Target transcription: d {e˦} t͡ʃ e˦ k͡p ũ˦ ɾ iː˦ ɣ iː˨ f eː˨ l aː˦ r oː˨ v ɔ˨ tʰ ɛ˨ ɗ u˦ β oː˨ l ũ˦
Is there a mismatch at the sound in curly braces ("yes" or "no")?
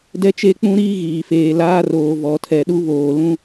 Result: yes